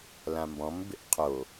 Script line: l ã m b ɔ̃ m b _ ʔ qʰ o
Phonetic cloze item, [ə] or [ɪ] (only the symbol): ɪ